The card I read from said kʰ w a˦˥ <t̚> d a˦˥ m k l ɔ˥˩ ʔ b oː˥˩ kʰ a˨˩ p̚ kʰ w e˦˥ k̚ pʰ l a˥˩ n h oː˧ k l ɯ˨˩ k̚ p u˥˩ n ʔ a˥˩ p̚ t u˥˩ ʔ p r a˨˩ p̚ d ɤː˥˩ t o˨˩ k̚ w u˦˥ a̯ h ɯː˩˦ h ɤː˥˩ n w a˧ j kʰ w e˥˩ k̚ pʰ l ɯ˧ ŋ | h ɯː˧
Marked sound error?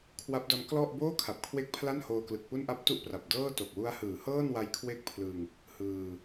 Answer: yes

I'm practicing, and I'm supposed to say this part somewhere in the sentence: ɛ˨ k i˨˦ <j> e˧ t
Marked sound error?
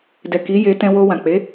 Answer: no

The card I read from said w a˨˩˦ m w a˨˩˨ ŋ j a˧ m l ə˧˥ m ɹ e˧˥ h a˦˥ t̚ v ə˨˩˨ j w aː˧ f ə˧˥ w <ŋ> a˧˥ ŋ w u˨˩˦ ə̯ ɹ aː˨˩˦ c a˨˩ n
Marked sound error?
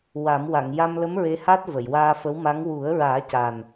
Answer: yes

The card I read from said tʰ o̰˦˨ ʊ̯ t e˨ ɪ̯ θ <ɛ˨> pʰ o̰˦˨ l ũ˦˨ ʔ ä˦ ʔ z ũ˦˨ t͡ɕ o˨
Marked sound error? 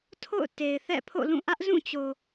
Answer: yes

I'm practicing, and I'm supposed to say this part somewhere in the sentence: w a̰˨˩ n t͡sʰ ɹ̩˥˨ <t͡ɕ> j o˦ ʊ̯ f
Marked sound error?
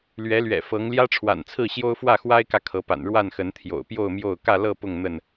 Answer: yes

